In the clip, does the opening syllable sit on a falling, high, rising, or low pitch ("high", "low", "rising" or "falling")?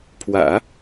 low